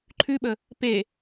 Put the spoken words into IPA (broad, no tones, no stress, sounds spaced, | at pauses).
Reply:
ǃʰ ʉ ɓ ə | p e